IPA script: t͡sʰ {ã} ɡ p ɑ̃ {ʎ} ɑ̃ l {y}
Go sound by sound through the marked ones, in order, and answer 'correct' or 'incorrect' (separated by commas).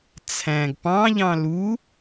incorrect, correct, incorrect